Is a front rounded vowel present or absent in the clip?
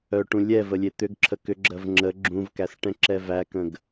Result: present